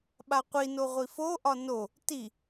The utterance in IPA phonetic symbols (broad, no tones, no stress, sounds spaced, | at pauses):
ɓ a qʷ i n o ʁʷ i f o ʔ ɒ n o | t i